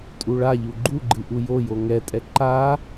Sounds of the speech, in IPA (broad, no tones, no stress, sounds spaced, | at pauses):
tʼ u ɭ a ʎ u ɡ͡ǃ u ɡ͡ǃ ɨ ʔ u j o j o ŋ ɛ tʼ ɛ ǃ a